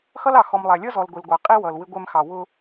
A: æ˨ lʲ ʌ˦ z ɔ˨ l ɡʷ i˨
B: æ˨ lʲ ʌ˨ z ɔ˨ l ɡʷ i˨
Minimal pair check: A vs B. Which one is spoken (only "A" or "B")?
A